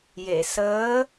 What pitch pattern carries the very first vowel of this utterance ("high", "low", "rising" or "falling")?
low